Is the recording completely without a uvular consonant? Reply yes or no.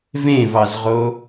no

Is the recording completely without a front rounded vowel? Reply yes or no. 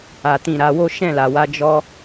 yes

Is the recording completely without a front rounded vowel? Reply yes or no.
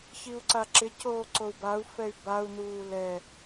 no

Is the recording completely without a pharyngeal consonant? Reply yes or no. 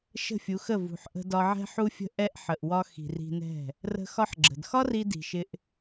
no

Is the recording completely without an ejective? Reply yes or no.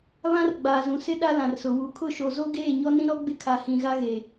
yes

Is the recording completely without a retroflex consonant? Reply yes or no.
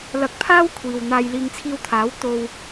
yes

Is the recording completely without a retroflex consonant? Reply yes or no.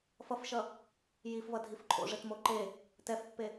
no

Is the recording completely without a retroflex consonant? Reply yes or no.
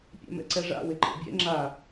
no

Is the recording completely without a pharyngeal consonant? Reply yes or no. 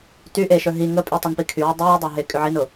no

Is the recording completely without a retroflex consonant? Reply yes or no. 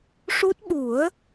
no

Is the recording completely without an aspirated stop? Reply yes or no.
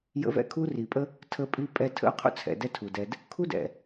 no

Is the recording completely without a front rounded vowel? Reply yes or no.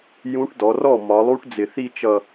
yes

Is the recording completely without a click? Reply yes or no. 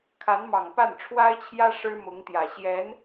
yes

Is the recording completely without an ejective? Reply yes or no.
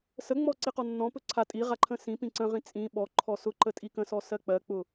no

